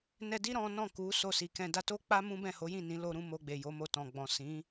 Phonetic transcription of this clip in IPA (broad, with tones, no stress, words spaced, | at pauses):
nɛ˧di˦ ɾɔ̃˦ nɔ̃˦˨ku˨˦ so˦˨si˨kɛ̃˧ da˧to˦ k͡pa˦ mũ˦bɛ̃˦˨ho˨˦jĩ˦˨ nĩ˨˦lo˧ɾũ˧ mo˧ɡ͡be˨jo˨˦ mo˧tɔ̃˨ɡ͡bɔ̃˨ sĩ˨˦